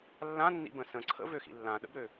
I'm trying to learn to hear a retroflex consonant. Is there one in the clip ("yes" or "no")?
no